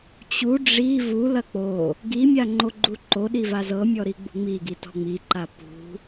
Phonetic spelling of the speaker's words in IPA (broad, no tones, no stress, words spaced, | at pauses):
t͡ɕu ɖ͡ʐi vu lɐk͡po | ɡi mʲaŋ͡ǃoɡ͡ǃuǃo ɗivazɤ mʲɔɾiɡ͡bṳŋ͡mi ɡitɔ̤ŋ͡mi ǃapṳ